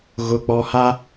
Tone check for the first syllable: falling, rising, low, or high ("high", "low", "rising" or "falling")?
low